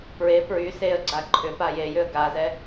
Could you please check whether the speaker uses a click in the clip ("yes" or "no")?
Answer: yes